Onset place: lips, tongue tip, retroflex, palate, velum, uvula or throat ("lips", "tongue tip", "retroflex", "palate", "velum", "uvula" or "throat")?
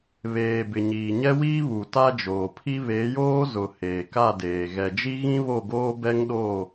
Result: lips